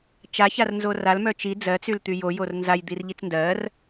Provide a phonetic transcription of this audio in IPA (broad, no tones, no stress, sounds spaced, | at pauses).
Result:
t͡ʃ a ç a r n z o r a l m œ t͡ʃ i d͡z ɜ t͡s y l t̪ y j o j o r n z a j d̪ i r ʎ i t͡s n d ɜ r